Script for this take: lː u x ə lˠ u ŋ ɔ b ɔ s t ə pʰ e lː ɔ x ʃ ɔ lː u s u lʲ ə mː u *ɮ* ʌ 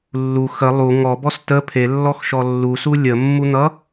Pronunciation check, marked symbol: incorrect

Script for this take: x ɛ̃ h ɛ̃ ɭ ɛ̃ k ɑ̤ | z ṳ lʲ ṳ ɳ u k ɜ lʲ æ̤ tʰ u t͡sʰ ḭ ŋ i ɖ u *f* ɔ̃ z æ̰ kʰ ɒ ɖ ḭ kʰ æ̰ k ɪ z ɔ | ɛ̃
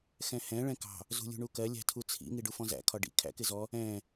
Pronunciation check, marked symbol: correct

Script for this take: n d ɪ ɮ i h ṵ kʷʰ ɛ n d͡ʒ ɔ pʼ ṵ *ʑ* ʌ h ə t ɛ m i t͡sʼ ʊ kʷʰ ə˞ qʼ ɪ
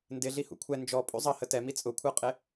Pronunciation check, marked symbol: incorrect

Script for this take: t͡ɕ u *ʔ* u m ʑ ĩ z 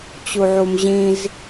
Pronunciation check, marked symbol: incorrect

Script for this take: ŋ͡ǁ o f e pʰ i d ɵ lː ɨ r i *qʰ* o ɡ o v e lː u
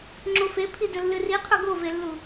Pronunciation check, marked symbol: correct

